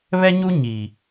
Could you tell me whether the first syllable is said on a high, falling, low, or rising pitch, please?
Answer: high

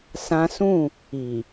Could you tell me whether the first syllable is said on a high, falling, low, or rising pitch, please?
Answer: high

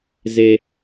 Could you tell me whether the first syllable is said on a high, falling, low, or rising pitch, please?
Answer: high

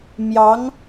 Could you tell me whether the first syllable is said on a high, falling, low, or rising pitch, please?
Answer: rising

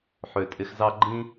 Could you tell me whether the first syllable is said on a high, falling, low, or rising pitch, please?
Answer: low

